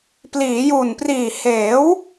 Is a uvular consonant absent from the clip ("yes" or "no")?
yes